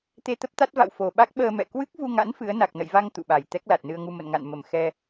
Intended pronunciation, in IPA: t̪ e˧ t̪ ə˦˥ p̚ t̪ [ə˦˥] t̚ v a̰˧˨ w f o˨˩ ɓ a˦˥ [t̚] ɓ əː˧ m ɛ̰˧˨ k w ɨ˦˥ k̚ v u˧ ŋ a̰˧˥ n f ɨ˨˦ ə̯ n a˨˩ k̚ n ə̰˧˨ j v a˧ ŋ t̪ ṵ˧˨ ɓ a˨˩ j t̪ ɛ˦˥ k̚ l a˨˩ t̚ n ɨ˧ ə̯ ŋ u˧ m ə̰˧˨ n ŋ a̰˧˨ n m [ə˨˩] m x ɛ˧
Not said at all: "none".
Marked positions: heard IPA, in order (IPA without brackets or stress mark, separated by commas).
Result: a˦˥, k̚, ə˨˩